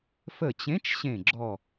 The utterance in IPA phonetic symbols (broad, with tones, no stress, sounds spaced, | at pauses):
f ə˧˩ t͡ɕ ẽ˨˥ t͡ʃ ɕ ẽ˧˩ ɡ͡ǁ ɔ˧˩